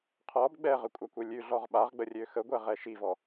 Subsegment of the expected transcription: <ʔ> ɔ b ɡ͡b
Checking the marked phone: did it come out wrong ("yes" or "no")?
yes